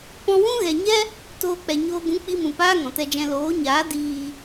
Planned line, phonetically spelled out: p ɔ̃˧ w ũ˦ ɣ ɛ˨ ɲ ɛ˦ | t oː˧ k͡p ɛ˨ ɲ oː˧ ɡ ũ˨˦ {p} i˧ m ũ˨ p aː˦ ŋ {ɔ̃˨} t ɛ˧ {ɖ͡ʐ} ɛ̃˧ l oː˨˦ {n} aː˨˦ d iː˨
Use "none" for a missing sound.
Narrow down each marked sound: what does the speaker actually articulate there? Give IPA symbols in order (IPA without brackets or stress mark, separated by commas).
k͡p, ɔ̃˨, d͡ʒ, ɲ